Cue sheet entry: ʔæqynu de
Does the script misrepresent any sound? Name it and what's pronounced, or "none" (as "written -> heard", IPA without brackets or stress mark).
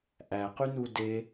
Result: none